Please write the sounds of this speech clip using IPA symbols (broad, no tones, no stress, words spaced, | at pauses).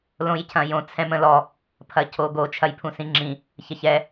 lõjcʰɐ̃jõ t͡sʰɛ̃mə̃lɔ | pʰɐcʰoɡo t͡ʃʰɐjpʰũsĩŋ͡ǁĩ | çɐçɛ